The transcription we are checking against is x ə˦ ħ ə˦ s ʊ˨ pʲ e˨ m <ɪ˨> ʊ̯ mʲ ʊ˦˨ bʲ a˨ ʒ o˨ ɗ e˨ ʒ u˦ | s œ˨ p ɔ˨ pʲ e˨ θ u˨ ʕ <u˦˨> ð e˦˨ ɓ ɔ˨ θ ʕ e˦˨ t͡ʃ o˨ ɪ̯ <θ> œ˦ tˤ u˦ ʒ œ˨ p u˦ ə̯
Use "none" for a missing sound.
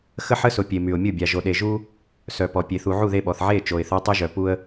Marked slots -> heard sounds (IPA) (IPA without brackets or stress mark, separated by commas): y˨, u˦˨, θ